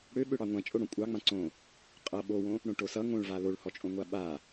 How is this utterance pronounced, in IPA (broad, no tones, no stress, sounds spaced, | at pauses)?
ɽ ø ɓ ø ɽ ɑ ŋʷ ã t͡ʃʼ o ɽ õ kʷʼ ɑ ŋ͡m ã ǀ õ | qʼ ʌ ɓ o w õ | ɽ õ ʈ o s ʌ ŋ õ ɭ v a l o ɭ h ɔ t͡ʃʼ õ ŋʷ a ɓ a